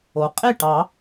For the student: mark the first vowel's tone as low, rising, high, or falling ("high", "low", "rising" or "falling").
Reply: low